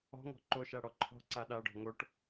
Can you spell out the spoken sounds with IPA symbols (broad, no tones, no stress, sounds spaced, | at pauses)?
ɔ̤ ŋ ɔ̤ ǃ o ʃ a ɽ ɔ ǃʰ ɔ̤ ǀ a ɗ a ɖ ɔ̤ ŋ o ʈ